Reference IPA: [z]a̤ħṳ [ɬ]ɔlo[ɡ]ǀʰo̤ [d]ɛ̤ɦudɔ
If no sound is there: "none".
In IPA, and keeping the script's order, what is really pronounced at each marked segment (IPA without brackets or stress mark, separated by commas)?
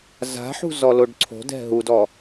z, z, ɖ, d